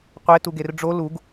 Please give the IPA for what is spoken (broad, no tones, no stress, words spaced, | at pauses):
qʷe tuɡerɖ͡ʐo luɡ